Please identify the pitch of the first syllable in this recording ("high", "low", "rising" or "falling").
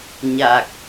low